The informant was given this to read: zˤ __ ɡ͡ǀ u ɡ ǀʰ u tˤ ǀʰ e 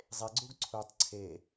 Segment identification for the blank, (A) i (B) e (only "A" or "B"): B